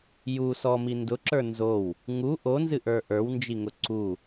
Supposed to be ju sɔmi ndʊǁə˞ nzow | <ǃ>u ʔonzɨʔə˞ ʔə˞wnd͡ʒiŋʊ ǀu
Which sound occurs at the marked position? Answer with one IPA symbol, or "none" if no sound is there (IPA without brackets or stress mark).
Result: ŋ